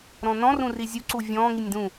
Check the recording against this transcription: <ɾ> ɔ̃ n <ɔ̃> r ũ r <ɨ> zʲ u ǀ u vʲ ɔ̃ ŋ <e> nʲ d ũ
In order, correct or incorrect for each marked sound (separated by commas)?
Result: correct, correct, incorrect, incorrect